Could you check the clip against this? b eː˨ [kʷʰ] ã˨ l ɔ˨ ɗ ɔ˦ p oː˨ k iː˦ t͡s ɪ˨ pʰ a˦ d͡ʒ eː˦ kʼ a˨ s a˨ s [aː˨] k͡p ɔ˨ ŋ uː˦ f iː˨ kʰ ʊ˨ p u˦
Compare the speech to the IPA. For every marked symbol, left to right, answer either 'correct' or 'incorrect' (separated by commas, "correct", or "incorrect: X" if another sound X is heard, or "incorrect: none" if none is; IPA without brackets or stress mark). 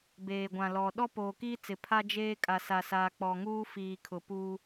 incorrect: ɡʷ, correct